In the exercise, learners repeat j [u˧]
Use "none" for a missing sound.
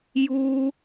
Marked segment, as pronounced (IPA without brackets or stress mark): u˧